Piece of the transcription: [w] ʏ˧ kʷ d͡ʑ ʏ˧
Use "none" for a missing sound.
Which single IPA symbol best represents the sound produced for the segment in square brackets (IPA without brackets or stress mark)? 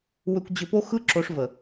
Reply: w